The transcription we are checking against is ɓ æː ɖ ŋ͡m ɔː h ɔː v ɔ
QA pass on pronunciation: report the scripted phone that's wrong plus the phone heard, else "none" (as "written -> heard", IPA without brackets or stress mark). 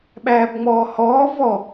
ɖ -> b